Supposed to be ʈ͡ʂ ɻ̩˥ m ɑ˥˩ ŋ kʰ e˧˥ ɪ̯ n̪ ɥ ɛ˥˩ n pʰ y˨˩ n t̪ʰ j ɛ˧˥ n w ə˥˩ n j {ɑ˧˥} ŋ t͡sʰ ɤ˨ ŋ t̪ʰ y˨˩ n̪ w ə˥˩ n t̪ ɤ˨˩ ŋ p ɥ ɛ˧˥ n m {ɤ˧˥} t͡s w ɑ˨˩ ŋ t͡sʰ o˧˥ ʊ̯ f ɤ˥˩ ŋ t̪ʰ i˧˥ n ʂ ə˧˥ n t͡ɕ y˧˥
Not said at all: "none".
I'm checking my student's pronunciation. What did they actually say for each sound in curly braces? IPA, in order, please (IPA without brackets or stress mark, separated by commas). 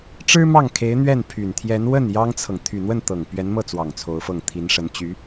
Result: ɑ˥, ɤ˥˩